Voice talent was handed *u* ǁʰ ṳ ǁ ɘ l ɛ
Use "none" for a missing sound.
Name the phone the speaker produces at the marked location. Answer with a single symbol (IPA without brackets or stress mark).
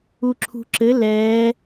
u